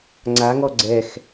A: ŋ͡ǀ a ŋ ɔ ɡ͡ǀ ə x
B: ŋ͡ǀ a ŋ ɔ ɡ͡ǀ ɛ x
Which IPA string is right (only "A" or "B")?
B